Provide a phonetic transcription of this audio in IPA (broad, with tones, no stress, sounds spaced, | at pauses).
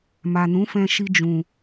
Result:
m a˨ n ũ˨˦ f ɛ̃˧ ʃ i˧ d͡ʒ ũ˨